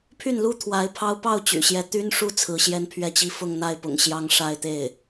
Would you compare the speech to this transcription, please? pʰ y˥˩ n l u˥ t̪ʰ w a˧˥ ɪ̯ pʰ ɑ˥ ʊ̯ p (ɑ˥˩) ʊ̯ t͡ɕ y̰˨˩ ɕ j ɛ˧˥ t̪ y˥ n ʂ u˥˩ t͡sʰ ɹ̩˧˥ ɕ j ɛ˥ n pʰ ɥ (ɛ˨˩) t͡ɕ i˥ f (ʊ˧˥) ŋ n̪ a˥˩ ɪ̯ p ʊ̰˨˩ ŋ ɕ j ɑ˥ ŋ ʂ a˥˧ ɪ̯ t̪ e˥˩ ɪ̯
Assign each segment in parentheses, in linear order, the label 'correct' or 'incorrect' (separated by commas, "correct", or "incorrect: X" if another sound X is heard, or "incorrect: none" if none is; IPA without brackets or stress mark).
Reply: correct, incorrect: ɛ˥˩, incorrect: ʊ˥˧